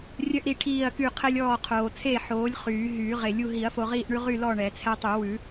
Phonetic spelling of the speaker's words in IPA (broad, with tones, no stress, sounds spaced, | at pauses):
rʲ œ˦ ʔ ɾ i˦˨ ʈʰ iː˦˨ ɐ̯ k y˦˨ qʰ ɛ˦ lʲ ɔː˦˨ qʰ oː˨ t͡sʰ e˦˨ ħ oː˨˥ lʲ χ yː˨˩˦ ɦ yː˨˩˦ ʁ e˨˩˦ lʲ u˦˨ ɦ i˨˩˦ ɐ̯ f o˨ ʁ iː˦˨ ʔ ɳ ʉ˦ ʁ y˦˨ l ɔ˦˨ ɳ ɛ˨˩˦ t͡sʰ ɛ˦ tˤ y˨˩˦ w ʉ˨˩˦